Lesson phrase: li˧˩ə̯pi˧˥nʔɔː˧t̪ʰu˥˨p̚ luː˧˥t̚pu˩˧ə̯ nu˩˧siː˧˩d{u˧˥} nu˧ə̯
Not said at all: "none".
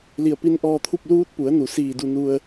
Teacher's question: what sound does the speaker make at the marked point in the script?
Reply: u˧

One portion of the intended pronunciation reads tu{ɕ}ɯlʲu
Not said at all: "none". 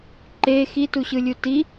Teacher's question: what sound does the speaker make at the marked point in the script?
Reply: ɕ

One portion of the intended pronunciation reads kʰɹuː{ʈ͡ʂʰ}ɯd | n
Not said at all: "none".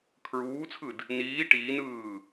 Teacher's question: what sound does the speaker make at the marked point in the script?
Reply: t͡sʰ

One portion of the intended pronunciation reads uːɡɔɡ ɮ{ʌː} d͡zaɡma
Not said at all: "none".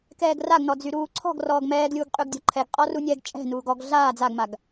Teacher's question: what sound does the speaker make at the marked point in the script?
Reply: aː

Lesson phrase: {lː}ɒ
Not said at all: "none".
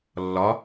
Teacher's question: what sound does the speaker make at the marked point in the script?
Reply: lː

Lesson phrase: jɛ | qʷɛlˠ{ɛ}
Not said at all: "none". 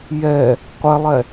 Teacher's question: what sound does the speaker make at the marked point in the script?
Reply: ɛ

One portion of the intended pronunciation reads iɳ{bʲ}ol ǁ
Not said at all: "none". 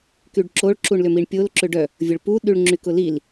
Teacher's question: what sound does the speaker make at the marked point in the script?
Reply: pʲ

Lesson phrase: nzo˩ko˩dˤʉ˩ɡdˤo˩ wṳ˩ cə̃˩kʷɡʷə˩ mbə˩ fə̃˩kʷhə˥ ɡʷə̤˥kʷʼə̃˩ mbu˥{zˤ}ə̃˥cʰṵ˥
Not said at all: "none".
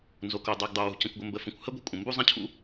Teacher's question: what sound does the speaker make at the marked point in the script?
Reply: zˤ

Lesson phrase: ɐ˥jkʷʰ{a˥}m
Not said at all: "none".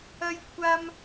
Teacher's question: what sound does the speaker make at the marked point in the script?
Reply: a˥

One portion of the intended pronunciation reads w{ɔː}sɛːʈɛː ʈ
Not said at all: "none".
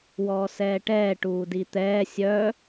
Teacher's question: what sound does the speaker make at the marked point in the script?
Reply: ɔː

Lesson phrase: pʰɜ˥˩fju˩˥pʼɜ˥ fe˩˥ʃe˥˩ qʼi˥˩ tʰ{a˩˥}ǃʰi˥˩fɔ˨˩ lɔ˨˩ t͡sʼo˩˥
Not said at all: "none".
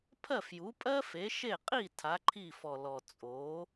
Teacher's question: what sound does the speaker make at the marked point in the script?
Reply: a˩˥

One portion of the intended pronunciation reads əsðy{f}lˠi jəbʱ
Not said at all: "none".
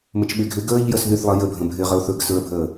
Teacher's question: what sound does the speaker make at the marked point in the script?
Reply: θ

